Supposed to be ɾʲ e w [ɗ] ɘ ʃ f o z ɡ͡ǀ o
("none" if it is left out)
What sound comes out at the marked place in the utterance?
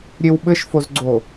ɓ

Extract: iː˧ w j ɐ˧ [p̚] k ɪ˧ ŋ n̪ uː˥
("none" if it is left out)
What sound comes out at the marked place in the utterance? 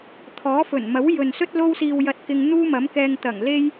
t̚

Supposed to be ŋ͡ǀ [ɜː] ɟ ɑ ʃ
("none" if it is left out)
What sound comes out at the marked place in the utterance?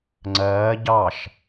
ɜː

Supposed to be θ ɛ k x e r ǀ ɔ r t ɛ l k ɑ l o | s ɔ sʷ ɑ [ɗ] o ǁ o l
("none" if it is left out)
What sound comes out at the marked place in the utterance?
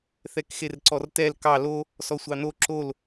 n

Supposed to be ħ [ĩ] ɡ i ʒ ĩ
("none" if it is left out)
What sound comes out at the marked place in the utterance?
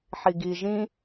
i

